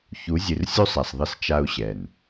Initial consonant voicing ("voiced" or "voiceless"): voiceless